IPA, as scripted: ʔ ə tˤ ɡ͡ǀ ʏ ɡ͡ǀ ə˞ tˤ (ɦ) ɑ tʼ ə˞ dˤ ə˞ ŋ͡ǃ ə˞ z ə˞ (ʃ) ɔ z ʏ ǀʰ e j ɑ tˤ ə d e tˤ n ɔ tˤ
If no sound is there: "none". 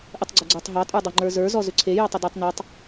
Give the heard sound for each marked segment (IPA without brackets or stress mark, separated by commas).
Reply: ɦ, z